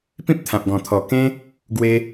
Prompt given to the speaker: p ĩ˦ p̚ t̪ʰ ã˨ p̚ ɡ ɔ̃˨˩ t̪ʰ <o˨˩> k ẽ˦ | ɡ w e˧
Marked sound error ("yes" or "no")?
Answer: yes